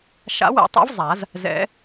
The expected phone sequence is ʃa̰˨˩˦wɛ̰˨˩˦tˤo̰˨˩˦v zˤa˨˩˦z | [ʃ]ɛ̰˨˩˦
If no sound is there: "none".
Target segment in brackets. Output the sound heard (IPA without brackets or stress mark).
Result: z